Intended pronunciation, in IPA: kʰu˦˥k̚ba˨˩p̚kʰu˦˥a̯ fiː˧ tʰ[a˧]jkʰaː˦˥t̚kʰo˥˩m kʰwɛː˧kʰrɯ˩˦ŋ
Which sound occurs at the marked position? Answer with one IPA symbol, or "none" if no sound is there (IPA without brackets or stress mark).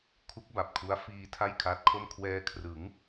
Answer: a˥˩